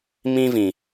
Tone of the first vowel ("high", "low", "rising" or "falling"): high